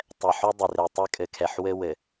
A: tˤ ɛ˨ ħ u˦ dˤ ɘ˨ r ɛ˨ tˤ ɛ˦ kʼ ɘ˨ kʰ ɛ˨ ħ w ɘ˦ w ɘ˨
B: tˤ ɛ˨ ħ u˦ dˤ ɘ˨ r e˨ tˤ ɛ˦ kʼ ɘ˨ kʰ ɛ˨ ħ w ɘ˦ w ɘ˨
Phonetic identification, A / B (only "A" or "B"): B